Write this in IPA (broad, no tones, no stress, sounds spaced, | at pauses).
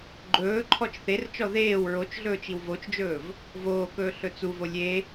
ɡ͡ǃ ɵː ǃʰ ɔ t͡ʃ θ e r t͡ʃ ɔ ð eː w ɹ o t͡ʃ ɮ ɵː t͡ʃ i w v o t͡ʃ d͡ʒ ɵː v | v oː k ɵː ɬ ɵ t͡s u v o lʲ e